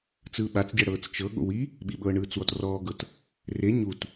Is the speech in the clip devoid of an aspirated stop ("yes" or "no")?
yes